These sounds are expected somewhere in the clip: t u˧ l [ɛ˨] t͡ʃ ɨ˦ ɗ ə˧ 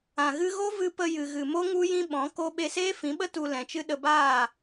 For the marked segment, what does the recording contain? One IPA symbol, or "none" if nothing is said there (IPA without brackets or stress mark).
ɛ̃˨